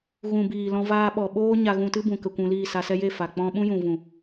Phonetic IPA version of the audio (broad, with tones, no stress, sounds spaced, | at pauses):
ɣ ũ˨ b iː˨ l ɔ̃˧ v aː˧ ɓ ɔ˨ ɓ oː˦ ɲ a˧ ɣ ũ˧ t ɨ˦ b ũ˨ k ə˧ kʷ ũ˧ l iː˦˨ s a˧ s ɛ˦ j e˦˨ f a˨ k͡p ɔ̃˦ ɓ ũ˦ j ũ˨ v ũ˨